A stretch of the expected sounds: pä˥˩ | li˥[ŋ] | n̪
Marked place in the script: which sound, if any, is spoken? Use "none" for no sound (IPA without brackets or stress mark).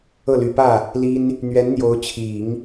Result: n